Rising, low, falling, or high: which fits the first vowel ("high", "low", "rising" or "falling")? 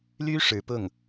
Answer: high